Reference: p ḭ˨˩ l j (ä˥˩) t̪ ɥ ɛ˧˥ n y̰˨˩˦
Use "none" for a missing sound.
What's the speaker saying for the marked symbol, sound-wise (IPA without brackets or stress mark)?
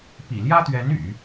ä˥